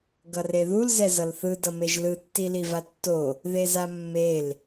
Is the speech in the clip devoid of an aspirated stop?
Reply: yes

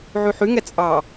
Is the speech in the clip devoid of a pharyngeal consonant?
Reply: no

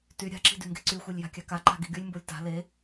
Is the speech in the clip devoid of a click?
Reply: no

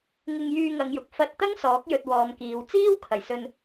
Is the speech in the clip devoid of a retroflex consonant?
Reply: yes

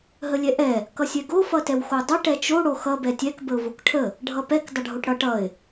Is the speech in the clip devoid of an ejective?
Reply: yes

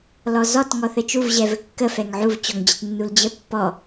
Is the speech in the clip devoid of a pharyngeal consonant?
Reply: no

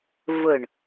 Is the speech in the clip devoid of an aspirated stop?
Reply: yes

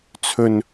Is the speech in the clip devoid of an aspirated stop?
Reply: no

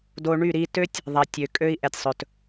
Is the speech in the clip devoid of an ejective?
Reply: no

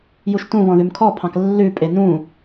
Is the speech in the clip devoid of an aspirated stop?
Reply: no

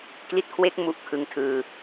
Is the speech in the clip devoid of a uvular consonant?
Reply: yes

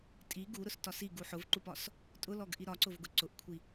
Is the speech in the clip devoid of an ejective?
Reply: no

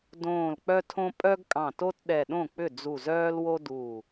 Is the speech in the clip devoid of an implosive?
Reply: no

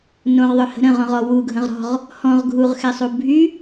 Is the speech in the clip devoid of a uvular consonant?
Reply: no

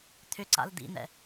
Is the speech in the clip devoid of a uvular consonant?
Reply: yes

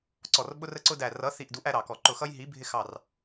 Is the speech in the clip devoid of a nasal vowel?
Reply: yes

